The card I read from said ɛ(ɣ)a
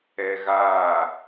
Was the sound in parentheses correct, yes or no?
yes